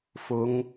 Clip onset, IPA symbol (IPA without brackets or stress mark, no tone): f